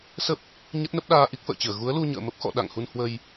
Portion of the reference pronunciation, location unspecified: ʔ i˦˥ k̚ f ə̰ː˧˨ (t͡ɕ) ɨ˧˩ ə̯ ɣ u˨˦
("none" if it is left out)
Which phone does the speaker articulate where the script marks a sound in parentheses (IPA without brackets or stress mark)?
t͡ɕ